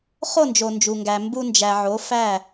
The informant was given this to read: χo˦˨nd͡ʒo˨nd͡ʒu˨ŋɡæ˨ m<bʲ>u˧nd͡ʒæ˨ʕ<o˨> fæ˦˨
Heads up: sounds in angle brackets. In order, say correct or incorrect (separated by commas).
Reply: incorrect, incorrect